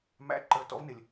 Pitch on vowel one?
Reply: high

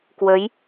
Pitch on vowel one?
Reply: rising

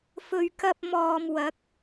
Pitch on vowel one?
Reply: low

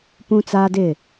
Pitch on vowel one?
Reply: high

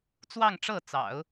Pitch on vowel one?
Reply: falling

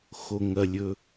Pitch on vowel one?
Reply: low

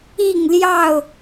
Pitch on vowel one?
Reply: falling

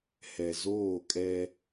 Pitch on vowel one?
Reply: low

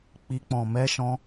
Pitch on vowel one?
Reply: high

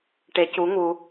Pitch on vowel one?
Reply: rising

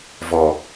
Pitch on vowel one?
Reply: low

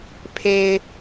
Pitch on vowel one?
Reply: high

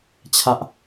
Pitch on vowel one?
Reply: high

